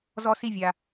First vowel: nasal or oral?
oral